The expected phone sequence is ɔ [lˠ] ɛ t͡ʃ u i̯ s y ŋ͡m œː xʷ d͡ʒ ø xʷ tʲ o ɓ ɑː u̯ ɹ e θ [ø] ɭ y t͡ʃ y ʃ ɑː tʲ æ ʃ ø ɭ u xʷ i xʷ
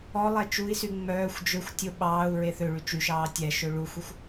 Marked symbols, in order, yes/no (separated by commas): yes, yes